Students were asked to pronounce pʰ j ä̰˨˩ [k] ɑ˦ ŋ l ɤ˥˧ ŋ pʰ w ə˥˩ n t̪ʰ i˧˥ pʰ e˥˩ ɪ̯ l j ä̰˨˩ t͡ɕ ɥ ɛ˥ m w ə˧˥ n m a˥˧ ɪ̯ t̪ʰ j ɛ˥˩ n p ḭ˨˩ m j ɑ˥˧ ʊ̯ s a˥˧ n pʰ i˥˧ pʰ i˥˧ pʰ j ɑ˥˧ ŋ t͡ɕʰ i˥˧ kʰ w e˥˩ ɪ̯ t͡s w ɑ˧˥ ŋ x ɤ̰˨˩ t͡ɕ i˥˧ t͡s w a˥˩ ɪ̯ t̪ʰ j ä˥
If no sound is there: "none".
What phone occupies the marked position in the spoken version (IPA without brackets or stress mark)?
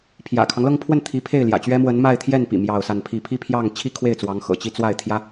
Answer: kʰ